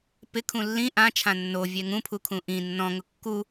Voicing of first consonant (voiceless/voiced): voiceless